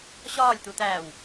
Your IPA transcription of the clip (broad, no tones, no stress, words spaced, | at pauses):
ɕɒːlʲt̪u t̪æːw